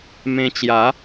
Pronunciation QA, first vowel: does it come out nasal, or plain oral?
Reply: nasal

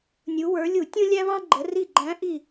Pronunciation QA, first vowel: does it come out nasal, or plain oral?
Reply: oral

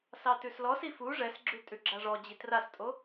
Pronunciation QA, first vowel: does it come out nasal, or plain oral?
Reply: oral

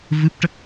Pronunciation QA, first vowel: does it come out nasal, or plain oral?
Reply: oral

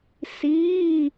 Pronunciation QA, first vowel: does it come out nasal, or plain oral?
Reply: oral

